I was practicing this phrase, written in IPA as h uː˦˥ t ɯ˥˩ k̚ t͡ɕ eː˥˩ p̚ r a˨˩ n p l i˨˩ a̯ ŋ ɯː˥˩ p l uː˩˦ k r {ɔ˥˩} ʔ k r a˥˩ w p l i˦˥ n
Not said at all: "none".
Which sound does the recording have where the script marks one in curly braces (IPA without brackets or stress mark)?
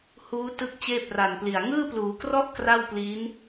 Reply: ɔ˥˩